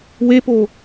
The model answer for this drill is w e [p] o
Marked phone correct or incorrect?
correct